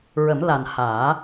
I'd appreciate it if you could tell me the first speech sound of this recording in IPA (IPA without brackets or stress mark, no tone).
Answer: ɹ